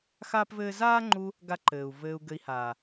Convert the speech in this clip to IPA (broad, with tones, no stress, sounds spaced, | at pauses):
x aː˦ p v ɘː˦ z aː˦ ŋ͡ǃ u˧ | ɡ a˦ ǃ ɘː˨ u̯ v ɘː˧ u̯ ɡ ɘ˧ i̯ h aː˨